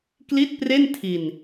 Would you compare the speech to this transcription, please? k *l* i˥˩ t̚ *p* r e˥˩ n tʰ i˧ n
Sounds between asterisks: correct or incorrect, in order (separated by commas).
correct, correct